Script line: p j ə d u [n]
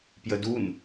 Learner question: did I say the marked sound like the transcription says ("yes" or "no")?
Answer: yes